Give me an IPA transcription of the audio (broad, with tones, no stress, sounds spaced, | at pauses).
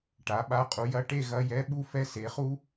ʈ a˩˥ ɓ a˧˥˧ qʼ u˩˥ j ɐ˧˥˧ ʈ e˥˨ ɣ ɐ˧˥˧ j ɛ˧˥˧ ɓ u˥˨ f ɛ˦˥ s e˩˥ χ u˦˥